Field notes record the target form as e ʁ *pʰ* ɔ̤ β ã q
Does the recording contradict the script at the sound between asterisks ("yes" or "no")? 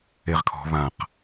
yes